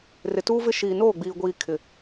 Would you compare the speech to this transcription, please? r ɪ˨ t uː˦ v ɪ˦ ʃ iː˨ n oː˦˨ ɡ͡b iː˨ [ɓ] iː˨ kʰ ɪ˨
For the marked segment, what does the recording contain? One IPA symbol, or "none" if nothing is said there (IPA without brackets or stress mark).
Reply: ɡʷ